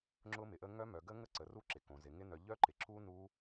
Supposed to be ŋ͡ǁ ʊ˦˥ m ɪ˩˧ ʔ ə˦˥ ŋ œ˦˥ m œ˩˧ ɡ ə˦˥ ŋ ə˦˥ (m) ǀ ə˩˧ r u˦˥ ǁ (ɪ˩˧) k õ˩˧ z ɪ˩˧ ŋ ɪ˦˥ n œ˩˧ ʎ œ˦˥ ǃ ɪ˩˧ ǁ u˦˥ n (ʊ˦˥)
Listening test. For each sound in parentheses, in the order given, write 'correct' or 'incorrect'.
incorrect: none, correct, incorrect: u˦˥

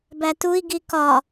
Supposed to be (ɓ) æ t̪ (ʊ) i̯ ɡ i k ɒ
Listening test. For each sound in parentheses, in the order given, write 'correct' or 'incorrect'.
incorrect: b, incorrect: u

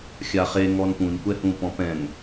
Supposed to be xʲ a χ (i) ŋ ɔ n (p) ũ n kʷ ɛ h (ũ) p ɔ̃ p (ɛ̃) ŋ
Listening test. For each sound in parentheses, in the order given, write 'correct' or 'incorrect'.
incorrect: e, correct, correct, correct

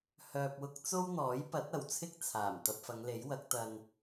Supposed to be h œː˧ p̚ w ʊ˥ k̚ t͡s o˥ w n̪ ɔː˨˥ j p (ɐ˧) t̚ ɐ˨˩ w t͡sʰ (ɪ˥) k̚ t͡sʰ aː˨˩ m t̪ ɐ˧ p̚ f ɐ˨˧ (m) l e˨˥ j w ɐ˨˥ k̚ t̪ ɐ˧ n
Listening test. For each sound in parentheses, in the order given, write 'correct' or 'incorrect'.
incorrect: ɐ˨˥, correct, incorrect: ŋ

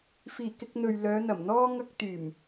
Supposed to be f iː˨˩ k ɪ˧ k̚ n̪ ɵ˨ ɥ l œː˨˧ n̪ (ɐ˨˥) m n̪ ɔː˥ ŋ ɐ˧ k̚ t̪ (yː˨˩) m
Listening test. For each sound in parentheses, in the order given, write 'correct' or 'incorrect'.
incorrect: ɐ˨˩, correct

